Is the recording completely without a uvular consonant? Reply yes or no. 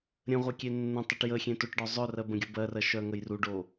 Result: no